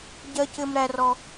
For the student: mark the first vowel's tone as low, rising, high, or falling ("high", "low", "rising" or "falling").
high